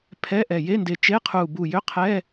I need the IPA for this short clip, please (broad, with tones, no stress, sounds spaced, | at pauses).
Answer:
pʰ ɛ˧˥˧ ʔ ɛ˧˩ j e˧˥˧ n d e˧˩ t͡ʃ e˧˥˧ qʰ u˧˩ b u˧˩ j ʏ˧˥˧ qʰ ɛ˧˥˧